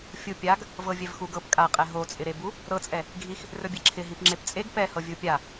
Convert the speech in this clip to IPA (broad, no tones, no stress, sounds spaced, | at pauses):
fʲ u pʲ a ɡ | v ɤ vʲ ɛ v x u ɡ ɤ p kʼ a qʼ ɛ ɦ o t͡sʼ ɪ ɾ e b u | ɾ ɤ t͡sʼ ɛ | ɡʱ i x | r ɵ bʲ e ǁʰ ɪ ɦ i p ŋ͡ǁ e p t͡sʼ e ɡ p ɛ h ɤ vʲ u pʲ a